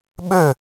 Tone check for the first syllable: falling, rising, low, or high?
falling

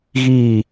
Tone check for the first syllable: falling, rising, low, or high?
falling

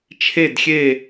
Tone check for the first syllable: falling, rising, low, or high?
falling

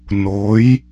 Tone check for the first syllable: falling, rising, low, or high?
rising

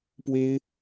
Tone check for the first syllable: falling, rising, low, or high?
high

